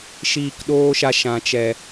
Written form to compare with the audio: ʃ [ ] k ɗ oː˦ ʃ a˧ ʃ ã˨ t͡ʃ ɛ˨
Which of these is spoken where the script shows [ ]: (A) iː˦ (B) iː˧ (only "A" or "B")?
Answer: B